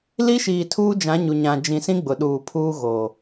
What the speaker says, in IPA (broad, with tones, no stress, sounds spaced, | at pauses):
l i˦ ʃ iː˨ tʰ uː˦ d͡ʒ ã˨˦ ɲ u˨ ɲ ã˨ d͡ʒ ĩ˨ s ĩ˦ ɡ͡b ʊ˨ ɗ uː˨ pʰ uː˦ ɣ oː˨